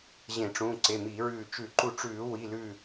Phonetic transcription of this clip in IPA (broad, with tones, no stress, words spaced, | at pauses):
ʑẽ˧˩˧ʈ͡ʂũ˩˧˩ ǀe˩˧˩miː˧˩˧ɹʉː˧˩ t͡ʃʉ˧˩˧ǃu˧˩ʈ͡ʂʉː˧˩˧ wi˩˧˩lʉː˧˩